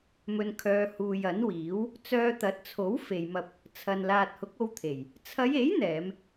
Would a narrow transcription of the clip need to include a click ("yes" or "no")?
no